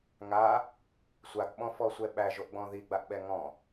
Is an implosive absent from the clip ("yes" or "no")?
no